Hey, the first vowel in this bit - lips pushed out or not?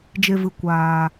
no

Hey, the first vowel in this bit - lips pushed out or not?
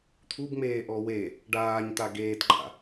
yes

